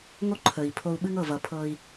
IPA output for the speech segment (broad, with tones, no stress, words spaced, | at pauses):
ŋo˦ǃʰə˨i̯ pʰo˧u̯ɓɨ˦ŋɤ˦˨ vʌ˨pʰɤ˧i̯